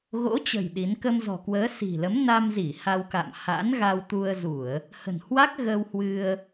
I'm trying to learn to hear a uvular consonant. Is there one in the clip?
no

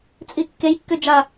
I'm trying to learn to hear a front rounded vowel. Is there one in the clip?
yes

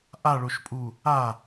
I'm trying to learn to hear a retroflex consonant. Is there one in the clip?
yes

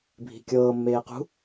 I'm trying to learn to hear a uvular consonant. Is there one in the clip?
yes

